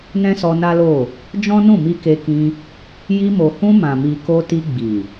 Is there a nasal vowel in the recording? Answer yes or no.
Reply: yes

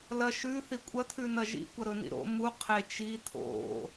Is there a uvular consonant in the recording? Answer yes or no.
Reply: yes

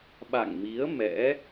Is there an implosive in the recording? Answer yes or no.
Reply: yes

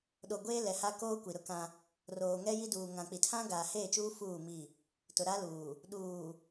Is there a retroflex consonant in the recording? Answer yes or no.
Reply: no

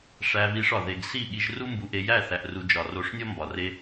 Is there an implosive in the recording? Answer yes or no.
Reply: yes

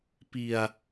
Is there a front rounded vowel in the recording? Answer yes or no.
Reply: no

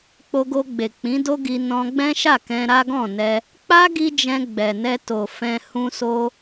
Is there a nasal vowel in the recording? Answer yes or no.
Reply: yes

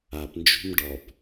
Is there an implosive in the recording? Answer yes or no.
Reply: no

